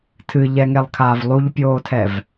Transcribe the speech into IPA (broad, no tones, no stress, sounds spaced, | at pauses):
tʰ ɨ ʎ ɛ ŋ ɛ lˠ kʰ aː v lˠ u ʎ pʲ oː tʰ ɛ v